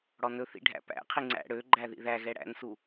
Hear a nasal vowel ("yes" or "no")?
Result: no